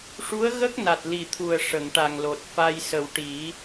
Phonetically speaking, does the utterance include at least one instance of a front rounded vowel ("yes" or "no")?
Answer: no